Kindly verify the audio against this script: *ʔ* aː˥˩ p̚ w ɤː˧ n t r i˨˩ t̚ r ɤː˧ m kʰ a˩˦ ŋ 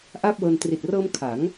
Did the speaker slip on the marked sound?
no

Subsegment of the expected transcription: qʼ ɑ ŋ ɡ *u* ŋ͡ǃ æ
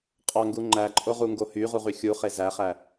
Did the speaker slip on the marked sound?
no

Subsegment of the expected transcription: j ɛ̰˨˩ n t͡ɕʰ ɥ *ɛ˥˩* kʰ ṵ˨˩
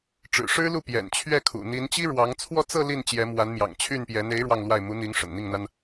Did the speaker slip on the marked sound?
no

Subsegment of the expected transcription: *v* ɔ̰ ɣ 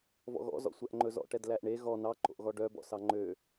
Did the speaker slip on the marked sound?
no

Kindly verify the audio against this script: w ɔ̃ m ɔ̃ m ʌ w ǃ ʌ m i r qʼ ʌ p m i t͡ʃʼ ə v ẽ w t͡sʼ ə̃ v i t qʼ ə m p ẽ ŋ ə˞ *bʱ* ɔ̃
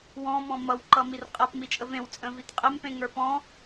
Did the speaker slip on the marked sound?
yes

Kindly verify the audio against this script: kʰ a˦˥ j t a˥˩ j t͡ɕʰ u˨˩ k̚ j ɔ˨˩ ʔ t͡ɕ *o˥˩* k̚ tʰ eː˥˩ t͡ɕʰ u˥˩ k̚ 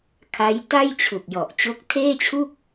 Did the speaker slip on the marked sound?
yes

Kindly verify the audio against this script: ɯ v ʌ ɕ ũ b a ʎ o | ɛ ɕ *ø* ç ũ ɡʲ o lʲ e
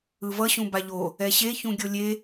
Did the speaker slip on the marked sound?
yes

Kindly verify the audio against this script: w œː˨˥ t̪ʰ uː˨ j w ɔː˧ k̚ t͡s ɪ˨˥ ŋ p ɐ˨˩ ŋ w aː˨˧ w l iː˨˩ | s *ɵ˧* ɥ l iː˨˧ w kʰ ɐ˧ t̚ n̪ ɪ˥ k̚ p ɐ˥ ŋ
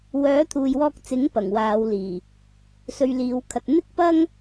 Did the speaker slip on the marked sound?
no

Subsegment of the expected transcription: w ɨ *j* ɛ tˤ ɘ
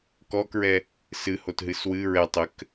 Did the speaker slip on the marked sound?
yes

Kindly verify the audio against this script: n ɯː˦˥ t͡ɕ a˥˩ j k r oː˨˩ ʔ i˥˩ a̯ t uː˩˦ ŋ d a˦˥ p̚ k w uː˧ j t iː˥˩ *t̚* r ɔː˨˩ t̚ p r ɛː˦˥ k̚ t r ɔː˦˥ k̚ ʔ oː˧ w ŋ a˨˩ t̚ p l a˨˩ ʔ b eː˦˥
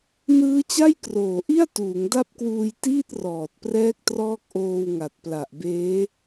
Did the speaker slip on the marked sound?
no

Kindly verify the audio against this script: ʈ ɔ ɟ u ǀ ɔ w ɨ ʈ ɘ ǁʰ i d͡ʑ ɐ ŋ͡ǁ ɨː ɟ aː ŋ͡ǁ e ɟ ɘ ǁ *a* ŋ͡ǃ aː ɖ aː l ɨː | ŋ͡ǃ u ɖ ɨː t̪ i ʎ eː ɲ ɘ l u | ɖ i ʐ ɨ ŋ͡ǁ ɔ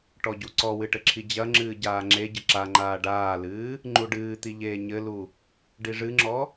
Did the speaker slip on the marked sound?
no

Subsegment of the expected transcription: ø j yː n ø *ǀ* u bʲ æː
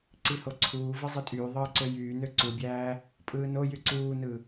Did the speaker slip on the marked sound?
no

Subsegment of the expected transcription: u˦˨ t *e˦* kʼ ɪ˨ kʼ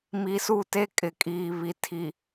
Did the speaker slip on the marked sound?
no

